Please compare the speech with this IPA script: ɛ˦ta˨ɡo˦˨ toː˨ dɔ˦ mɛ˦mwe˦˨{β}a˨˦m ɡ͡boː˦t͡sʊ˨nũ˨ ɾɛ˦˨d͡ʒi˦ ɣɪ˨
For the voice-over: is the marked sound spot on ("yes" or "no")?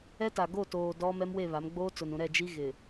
yes